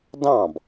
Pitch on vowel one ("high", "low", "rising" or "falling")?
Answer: falling